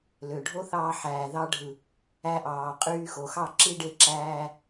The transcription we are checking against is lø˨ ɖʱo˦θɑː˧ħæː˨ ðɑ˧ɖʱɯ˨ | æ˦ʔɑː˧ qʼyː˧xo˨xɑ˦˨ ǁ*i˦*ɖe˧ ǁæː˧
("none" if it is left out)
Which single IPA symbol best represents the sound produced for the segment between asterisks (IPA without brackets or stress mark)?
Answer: i˦